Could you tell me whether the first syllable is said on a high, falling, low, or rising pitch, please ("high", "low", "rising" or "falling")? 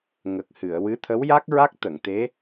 low